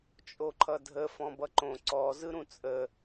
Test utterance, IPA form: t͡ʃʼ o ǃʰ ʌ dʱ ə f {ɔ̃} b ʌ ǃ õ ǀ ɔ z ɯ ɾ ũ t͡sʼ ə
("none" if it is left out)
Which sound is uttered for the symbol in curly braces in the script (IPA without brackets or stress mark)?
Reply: ɔ̃